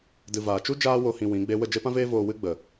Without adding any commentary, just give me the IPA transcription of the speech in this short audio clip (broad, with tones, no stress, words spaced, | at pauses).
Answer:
dɨ˨vaː˨ t͡ʃu˦ d͡ʒaː˦wo˧ hĩ˧wĩ˨˦ɡ͡be˦ wə˦˨d͡ʒe˦pã˦veː˦ voː˧wɨ˦ ɡ͡bə˨